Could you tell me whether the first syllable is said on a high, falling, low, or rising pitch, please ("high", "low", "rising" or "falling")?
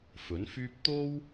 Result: rising